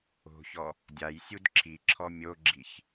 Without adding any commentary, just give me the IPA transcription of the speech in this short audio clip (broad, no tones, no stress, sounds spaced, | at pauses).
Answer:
o̤ ç ɔ | dʲ a j sʲ u d ǁʰ i ǁʰ ɔ mʲ o ɡ͡ǁ i ç